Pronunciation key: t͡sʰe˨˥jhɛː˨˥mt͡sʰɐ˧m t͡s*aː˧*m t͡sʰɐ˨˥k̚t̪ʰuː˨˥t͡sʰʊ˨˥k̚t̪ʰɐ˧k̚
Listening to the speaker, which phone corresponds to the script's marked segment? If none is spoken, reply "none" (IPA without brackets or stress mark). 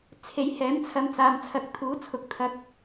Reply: aː˧